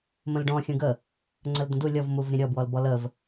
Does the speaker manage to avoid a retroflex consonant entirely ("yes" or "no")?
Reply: no